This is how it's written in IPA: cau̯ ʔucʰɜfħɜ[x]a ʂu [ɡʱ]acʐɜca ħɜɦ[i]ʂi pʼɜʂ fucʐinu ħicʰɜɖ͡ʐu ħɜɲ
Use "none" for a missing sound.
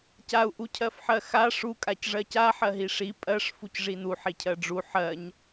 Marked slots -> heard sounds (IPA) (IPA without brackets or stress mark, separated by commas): x, kʼ, i